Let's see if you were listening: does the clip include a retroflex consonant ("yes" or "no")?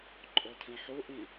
no